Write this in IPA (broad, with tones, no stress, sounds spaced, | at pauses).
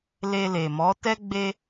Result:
l e˧ l e˨ m ɔ˨˦ t ɛ˦ ɡ͡b e˦